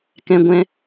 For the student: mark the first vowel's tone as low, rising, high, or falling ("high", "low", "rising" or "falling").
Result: high